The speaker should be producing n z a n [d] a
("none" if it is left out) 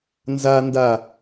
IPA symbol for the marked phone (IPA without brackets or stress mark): d